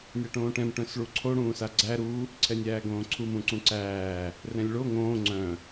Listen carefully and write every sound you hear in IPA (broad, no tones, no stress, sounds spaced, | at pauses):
nʲ a ʈ õː ʈ ɛ̃ m ʈ œ̃ s ɭ u ǀʰ o ɽ ũː s a ɡ͡ǀ æ ɾ u | ǀʰ ɛ nʲ æː ɡ õː ǀʰ u m ũ ǀ ũ ǀ æː | r ɛ̃ lʲ ɭ o ŋ õː ŋ͡ǀ œ̃